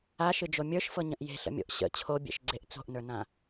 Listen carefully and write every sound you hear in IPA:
a ʃ ɨ d͡ʒ o mʲ ə˞ ʃ f ɤ ɲ ə̃ ʔ j e̤ ɬ ə̰ mʲ o̰ ʔ ɕ ə̰ t͡ɕʰ o bʲ ḛ ʃ ɡ͡ǀ e ʔ t͡s o̤ ʔ n ə˞ n ã

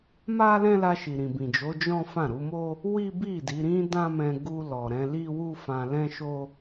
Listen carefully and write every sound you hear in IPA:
m a˦ l ɛ̃˦ l a˧ ʃ i˨ ɾ ĩ˨ b ĩ˨ d͡ʒ o˨˦ d͡ʒ ɔ̃˦ f ã˦˨ ɾ u˨˦ m o˦ | w i˦ b i˦˨ d i˨˦ ɾ ĩ˦ d ã˦ m ɛ̃˧ ɡ u˧ l ɔ˨ ɾ ɛ̃˨˦ l i˦ w u˦ f ã˧ l ɛ̃˦ ʃ o˦

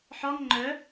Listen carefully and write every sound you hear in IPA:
ħ ɒ ŋ ŋ͡ǃ œ

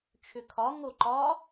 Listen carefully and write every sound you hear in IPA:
t͡ʃʰ ʏ kʰ ɒ ŋ o ǃ ɒ

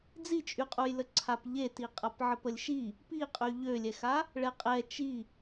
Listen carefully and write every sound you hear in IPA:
d͡z i t͡ʃʼ y qʼ u j l ə ǀʰ a p ʎ e t i qʼ a p ʕ ə p ə lʲ ʃ i | p i qʼ y ʎ ø lʲ ɛ x a | ɭ ɛ qʼ ɛ t͡ʃ i

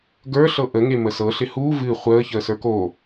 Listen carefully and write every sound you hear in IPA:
ɡ ə˞ ɬ ɤ ʔ ə ŋ e m ə s ɤ ɬ ɪ h u v ɨ χʷ əː ç əː s ə˞ k o

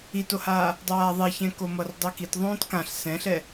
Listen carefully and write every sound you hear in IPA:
i t o h aː | dˤ aː ðˤ e ç ɛ̃ k o m ʌ r dˤ i k i t ðˤ õː t k ã ɬ s ɛ̃ ɬ ɛ

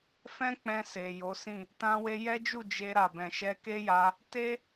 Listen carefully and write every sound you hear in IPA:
f ɛ̃˦ k͡p ɛ̃˧ s e˨ j o˨˦ s ĩ˦˨ | t ã˧ w e˧ j ɛ˦ d͡ʒ u˦˨ d͡ʒ e˧ ɾ a˨ b ɛ̃˨ ʃ ɛ˧ k e˦ j a˧ | t e˦

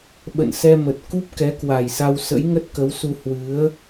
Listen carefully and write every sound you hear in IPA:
ɓ ə̰˧˨ n s ɛ˧ m ə˨˩ t̚ k u˦˥ p̚ k ɛ˨˦ k w a˨˩ j s a˧ w s ə̰˧˥ j ŋ ə˦˥ t̚ k ə˨˦ w s u˧ h w ɨ˨˦ ə̯

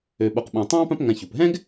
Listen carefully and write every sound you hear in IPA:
ø˨ ɓ o˨ q ɓ ɑ̃˨ tˤ ɑ̃ː˥ p ã˦ p ŋ ã˨ ç u˩ p ɦ ɛ̃˥ ɡ

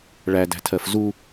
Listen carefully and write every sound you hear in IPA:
ɭ æ d æ̤ tʰ ɜ f z u

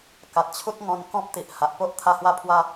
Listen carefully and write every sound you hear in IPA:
k a˨ t̚ t͡ɕʰ u˦ t̚ ŋ ɔ̃˧ n k ɔ̃˦ p̚ t̪ i˨ ʔ h a˨ ʔ p o˦ ʔ t̪ʰ a˥˧ h w a˥˧ pʰ w a˦

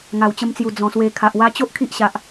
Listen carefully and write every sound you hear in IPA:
ŋ a˨˩ w t͡ɕ ə˧ m t͡s j u˨˩ d͡z ɔ̃˨˩ s w e˧ kʰ a˨ ʔ w a˦ t͡ɕ o˦ ʔ kʰ i˦ ʔ ɕ a˨ ʔ

